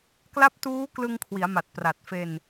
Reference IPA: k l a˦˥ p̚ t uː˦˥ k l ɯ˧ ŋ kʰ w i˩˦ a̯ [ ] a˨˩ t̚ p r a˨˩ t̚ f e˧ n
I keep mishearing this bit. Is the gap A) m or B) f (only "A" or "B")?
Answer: A